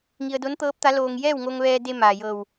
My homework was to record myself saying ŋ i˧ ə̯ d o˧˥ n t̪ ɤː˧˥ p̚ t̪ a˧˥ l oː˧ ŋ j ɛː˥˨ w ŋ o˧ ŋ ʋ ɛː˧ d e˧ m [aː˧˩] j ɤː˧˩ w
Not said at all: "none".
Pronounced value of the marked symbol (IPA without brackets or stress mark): aː˩